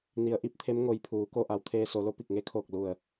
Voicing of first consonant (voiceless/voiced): voiced